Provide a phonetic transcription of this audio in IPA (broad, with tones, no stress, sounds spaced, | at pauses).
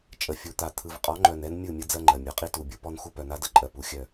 t͡ʃʼ ə˨ fʲ u˨ t̪ a˨ t̪ʰ ɯ˨ v qʼ ɔ˨˦ ŋ͡ǃ œ˨ n ɛ˦ n mʲ ɯ˦˨ mʲ ə˦ d͡z ɜ˦ ŋ͡ǃ ɜ˨ mʲ u˨ qʼ i˦ t u˨ bʲ u˦ p ɔ˦ n x u˦ p œ˨ n a˦ d ə˦˨ ǃʼ ɜ˨ p u˨ xʲ œ˦˨